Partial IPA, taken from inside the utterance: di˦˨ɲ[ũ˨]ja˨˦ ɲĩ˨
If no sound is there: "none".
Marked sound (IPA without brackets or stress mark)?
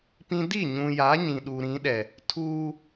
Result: ũ˨